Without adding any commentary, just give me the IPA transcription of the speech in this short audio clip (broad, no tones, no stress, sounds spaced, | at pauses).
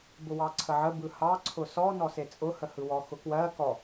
b ʊ w ɑ ǀʰ ə ʕ ə b ɯ h ɑ ǀʰ ʊ s ɔ n ɔ s e t͡sʼ ʊ h ə h ɯ w ɔ x ʊ k w ɜ k ɔ